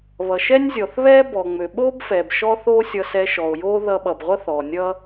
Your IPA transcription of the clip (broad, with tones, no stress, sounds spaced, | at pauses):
β ʌ˩ ʃ ɛ˥ nʲ zʲ ɔ˩ θ β ɛː˥ b ɔ˩ ŋ͡m ø˩ ɓ oː˥ b f ɛː˩ b ʃ ɔ˥ θ oː˥ sʲ ʌ˧ s ɛː˧ ʃ ɔ˩ o̯ j oː˥ ð ʌ˧ ɓ ʌ˩ b ʁʷ ʌ˥ θ ɔ˩ nʲ ʌ˥